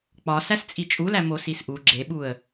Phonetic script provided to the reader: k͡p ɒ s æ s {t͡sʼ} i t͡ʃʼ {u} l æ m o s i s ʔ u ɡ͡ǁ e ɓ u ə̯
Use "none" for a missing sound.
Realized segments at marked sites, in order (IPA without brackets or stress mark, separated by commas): t͡sʼ, u